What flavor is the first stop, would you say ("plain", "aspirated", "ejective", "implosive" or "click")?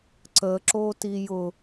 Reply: click